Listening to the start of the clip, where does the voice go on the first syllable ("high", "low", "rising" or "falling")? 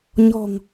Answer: low